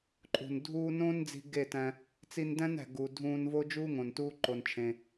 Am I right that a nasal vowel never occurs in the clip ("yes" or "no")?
no